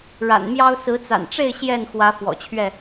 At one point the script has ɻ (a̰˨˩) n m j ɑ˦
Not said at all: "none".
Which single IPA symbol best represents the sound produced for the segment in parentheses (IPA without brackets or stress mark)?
a̰˨˩